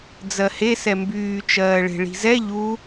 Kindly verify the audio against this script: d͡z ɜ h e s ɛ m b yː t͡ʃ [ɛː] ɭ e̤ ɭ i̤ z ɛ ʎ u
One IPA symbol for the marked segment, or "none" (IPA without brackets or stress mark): ɜː